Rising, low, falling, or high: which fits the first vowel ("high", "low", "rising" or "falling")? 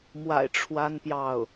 low